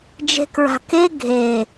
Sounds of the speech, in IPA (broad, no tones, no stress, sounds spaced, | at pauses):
d͡ʒ e̤ k ɹ a̤ k e ɡʱ e